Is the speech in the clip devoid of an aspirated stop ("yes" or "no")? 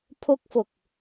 no